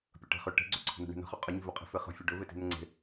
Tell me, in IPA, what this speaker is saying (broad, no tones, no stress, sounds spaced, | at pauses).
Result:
pʲ ə ʈ e̤ χ ʏ ʈ e̤ ɡ͡ǀ ɵ ǀʰ ə̤ n̪ ə̤ ɳ e̤ n ə̤ χ ɵ qʼ ə ɲ i̤ v ɵ qʼ i̤ f e χ ə̤ fʲ ɒ ɖ ɵ v e t i̤ n̪ ə ŋ͡ǀ e̤